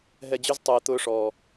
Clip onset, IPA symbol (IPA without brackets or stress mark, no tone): ɦ